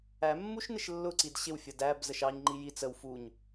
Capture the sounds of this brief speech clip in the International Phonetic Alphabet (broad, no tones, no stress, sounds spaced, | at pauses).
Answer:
æ mː u ʃ n ɪ ʃ lː ʊ ǀ i d ɕ ɪ w fʲ ʌ d æ b z ə ʃ ɑ ɲ ŋ͡ǃ i j i t͡s ə w f u ɲ